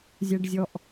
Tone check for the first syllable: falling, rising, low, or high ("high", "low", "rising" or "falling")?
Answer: high